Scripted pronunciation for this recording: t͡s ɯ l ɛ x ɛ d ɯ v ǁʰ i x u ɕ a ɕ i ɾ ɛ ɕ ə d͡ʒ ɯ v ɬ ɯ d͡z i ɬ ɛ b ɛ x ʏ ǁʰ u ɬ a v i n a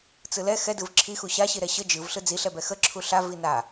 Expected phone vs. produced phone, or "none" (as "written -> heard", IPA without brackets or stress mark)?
ʏ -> ə